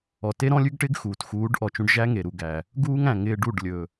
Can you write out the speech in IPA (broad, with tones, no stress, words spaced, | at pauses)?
ɔ˨ te˦ ɾɔ̃˦lʲʉ˦ɡʈɪː˦ɡ xuː˨txuː˨˦ɖ ʔɔ˨t͡ʃũ˧ɖ ʒæ˦ŋe˨ɾu˨ ɡæ˨ | ɡuː˦ŋæ̃˨ŋɪː˧ɖu˦˨ɖ lʲɵ˨